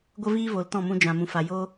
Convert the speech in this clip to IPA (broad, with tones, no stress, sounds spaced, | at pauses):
ɡʷ ə˦ v iː˦ v o˨ l t ɔ̃˦˨ m ũ˧ d͡ʒ ã˨ m ũ˨ f a˨ j oː˦